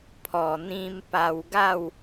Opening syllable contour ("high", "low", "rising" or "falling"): low